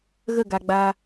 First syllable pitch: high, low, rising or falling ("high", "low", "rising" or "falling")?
falling